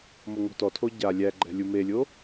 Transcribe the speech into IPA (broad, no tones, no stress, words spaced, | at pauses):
moŋo̤tɔtʰo ɟa lʲæ ɡ͡ǃɛ̤lʲumelʲo